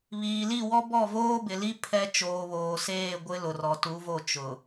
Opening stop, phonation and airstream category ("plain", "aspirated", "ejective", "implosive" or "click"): plain